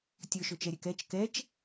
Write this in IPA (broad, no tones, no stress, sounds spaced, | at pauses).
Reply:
tʲ ɵ ʃ ɵ t͡ʃ ɛ ɾʲ ɛ k ɛ t͡ʃ k ɛ t͡ʃ